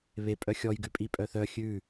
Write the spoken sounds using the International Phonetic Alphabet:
β e pʼ œ xʲ ɔ j ɡ ʉ pʼ i pʼ œ θ œ xʲ ʉ

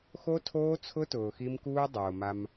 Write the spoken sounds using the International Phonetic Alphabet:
x o˦ tʰ oː˦ t͡sʰ ʊ˦ t ʊː˨ x i˦ m k uː˦ dˤ oː˨ m a˦ m

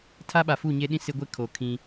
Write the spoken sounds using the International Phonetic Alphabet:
tʰ a˦ ɓ a˨ f u˦˨ ɲ e˦ ɗ ĩ˦ s ɪ˦ ɡʷ e˦ kʰ o˨ kʰ ĩ˦

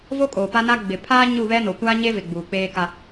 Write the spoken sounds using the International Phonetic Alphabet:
v o˦ kʼ oː˨ p a˦ n a˦ ɡ͡b ɪ˨ pʰ aː˦ ɲ u˦˨ β ɛ˦ n o˨ kʷ aː˦ ɲ e˦ v ɪ˨ ɡ͡b uː˨ k͡p eː˦ k a˦

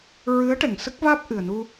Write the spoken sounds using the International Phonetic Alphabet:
ɹ ɨ˧˥ ə̯ ʈ ɛ˨˩ ŋ s ə˦˥ k̚ v aː˦˥ p̚ ʔ ɨ˨˩ ə̯ n u˧

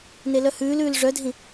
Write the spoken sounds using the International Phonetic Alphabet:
n e l œ h ʉː l ʉː l ʐ œ dʱ ĩ

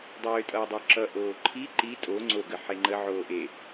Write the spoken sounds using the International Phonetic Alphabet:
dˤ øː tʼ ʌː dˤ o ǁ ʌ ʔ oː ǃʰ i ǃ i tʼ o ŋ͡ǀ o ɡ ə ħ e ŋ͡ǃ ə ʕ oː ʔ e

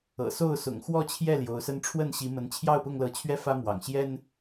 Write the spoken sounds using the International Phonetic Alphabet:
ɤ̰˨˩ s o˥˨ ʊ̯ s ʊ̰˨˩ ŋ x w ɔ˥˨ t͡ɕʰ j ɛ˥˨ l j o˨˦ ʊ̯ s ə˦ n ʈ͡ʂʰ w ə˥˨ n ɕ i˨˦ m ə˨˦ n t͡ɕʰ j ɑ˥˨ ʊ̯ p ʊ˥˨ ŋ l ɤ˨˦ t͡ɕʰ ɥ ɛ˥˨ f ä˦ m w ɑ̰˨˩ ŋ ɕ j ɛ˦ n

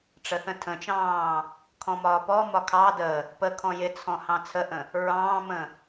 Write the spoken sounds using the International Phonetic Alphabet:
ʈ͡ʂ ə θ ə̃ tʰ ə̃ t͡ʃ ɑ̃ː | kʰ ɔ̃ m ɒː p ɔ m ɒ kʰ ɑ d ə | p ə kʰ ɔ̃ j ɪ t͡sʰ ɔ̃ h ɑ̃ t͡sʰ ə ʔ ə̃ | ɹ ɑ̃ː m ə̃

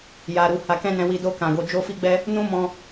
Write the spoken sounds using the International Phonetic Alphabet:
j a˧ ɾ u˧ h a˧ k ɛ̃˦ n ɛ̃˧ w i˧ d o˧ k ã˨ ɡ o˨ d͡ʒ o˧ f i˧ ɡ͡b ɛ˧ | n ũ˦ m ɔ̃˧

